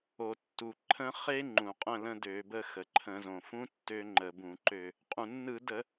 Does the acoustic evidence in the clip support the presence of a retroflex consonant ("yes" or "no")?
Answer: no